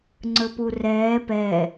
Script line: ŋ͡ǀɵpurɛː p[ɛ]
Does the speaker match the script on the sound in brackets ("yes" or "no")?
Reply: yes